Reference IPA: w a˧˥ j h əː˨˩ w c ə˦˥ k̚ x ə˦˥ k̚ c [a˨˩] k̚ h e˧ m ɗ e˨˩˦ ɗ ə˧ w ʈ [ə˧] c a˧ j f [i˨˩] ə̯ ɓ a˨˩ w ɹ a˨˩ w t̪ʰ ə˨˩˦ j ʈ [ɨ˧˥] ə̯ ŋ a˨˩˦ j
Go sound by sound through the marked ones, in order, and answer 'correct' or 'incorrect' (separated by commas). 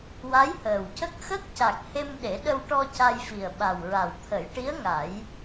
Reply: correct, incorrect, correct, incorrect